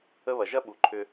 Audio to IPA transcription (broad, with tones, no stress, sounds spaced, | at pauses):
ə˦ β ɐ˨ ʒ ɐ˦ ɓ u˨ ǃʰ ʏ˦